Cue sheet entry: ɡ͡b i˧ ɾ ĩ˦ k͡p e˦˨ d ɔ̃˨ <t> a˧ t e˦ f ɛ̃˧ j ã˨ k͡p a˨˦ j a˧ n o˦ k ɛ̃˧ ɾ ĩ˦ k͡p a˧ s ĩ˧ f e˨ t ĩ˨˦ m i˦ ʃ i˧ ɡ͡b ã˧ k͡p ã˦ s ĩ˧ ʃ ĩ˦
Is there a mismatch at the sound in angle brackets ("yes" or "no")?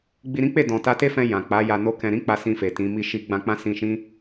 no